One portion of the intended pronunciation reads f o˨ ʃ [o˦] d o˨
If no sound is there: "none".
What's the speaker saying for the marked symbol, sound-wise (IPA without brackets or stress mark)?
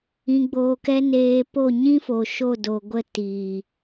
o˦˨